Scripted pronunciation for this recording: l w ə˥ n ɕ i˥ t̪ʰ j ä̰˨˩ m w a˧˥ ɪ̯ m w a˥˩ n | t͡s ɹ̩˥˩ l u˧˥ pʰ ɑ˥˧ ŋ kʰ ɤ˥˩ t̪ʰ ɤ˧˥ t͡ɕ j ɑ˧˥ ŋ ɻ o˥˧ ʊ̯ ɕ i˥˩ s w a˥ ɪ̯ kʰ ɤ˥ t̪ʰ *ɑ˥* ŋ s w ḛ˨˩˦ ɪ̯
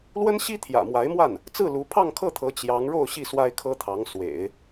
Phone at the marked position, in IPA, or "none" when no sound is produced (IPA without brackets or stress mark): ɑ˧˥